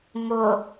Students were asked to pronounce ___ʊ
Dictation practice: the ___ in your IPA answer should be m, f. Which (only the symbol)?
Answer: m